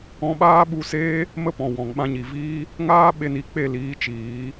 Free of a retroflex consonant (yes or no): yes